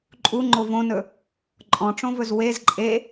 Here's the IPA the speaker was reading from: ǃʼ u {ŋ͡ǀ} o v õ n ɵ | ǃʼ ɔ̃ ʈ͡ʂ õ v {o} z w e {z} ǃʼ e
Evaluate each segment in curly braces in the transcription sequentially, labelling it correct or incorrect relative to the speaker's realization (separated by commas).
incorrect, incorrect, correct